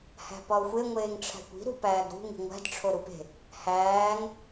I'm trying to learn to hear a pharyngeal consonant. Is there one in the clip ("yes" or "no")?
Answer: no